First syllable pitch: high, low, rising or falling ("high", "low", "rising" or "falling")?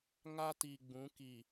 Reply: high